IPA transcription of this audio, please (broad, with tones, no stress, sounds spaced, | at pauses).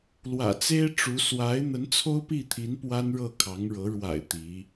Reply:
l w ä̰˨˩ t͡s e˥ ɪ̯ ʈ͡ʂ u˧˥ s w a˧˥ ɪ̯ n̪ ə˧˥ n t͡sʰ o˥ ʊ̯ p i˥˩ t̪ʰ i˧˥ n p w a˥ n ɻ ɤ˥˩ kʰ ɑ˧˥ ŋ ɻ ɤ˧˥ ɻ w a̰˨˩ ɪ̯ t̪ i˧˥